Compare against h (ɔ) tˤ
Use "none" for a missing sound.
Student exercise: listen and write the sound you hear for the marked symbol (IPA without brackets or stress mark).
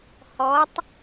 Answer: ɔ